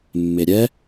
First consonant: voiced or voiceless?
voiced